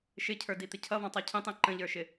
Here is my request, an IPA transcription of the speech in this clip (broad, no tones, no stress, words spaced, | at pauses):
ʃɪcʰə˞dit̪ɪ cʰʌvɔ̃tˤɔ cʰĩtˤĩ ǃə̃ʎə˞ʃɪ